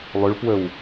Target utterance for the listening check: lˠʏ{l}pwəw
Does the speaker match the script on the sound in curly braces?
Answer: no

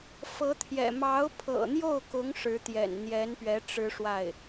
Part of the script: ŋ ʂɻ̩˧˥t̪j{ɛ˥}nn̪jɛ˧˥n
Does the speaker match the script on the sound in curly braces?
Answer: no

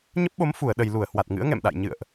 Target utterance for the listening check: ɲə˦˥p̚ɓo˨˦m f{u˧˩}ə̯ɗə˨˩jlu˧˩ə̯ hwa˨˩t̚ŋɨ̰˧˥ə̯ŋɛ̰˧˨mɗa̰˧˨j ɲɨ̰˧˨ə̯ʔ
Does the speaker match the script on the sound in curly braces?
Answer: yes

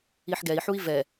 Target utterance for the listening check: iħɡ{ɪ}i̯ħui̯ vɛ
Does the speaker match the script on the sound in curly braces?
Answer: no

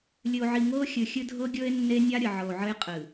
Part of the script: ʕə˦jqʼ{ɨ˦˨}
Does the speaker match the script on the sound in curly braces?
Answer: no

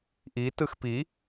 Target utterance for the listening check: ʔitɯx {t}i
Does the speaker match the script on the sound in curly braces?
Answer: no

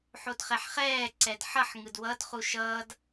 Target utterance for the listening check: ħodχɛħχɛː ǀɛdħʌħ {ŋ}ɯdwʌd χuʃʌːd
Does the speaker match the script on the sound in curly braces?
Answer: yes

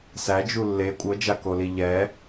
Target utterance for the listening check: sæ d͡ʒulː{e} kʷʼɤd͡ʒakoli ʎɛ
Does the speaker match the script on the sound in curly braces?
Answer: yes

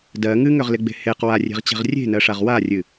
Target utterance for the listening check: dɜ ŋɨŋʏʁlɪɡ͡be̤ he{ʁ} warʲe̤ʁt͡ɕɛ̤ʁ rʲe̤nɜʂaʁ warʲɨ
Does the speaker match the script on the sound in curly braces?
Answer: no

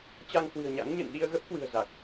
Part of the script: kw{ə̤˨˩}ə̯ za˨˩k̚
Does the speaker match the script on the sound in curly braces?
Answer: no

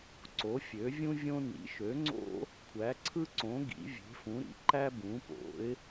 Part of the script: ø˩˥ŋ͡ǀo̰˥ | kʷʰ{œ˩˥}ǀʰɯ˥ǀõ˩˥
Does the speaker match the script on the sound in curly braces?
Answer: no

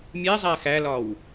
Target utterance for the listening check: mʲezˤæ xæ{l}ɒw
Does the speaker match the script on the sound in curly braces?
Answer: yes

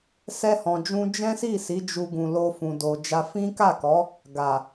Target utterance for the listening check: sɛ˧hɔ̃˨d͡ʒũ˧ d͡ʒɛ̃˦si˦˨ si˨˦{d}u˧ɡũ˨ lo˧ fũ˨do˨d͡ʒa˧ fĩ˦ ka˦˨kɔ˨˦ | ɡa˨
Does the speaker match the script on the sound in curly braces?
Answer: no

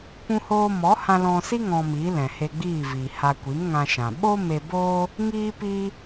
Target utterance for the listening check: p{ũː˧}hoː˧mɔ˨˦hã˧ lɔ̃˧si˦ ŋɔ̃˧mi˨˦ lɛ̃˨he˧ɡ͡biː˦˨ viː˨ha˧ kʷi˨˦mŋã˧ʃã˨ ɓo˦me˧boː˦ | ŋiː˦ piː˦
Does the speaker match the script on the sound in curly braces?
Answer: no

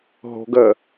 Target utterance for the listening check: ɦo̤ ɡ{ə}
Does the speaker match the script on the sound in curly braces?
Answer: yes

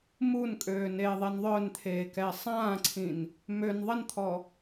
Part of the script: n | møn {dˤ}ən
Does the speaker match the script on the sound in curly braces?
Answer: no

